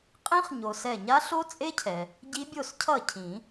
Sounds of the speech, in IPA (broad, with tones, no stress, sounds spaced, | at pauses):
qʼ ĩ˦˥ χ ɲ o˩ s ɛ˧˩ ɲ a˦˥ ɬ o˦˥ t͡sʼ e˦˥ cʰ ɛ˩ | ɟ i˦˥ bʲ o˥˩ s cʰ ʌ˥˩ cʰ ĩ˨˩˦